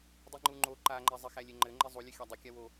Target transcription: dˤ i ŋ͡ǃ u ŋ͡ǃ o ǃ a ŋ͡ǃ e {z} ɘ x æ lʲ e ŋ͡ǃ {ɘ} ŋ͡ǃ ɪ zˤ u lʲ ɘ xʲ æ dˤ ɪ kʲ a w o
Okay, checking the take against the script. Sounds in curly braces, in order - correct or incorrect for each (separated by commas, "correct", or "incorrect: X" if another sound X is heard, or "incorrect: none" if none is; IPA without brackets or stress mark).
incorrect: zˤ, correct